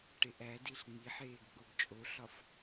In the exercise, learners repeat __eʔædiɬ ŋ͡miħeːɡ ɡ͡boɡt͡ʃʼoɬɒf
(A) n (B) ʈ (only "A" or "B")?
B